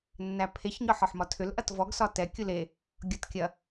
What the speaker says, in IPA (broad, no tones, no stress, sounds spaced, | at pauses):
nː æ pʰ e ç ɲ ɒ ħ ɒ ħ m ɒ tʰ ʏ l ʔ ɐ t v ɔ ɡ s ɒ t ɛ kʲ u l e | ɡʲ ɒ t kʲ ɐ